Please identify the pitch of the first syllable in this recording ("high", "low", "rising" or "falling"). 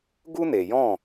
high